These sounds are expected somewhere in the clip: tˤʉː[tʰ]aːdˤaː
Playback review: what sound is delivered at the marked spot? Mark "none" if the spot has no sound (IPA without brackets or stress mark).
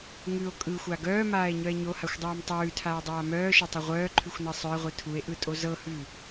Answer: tʰ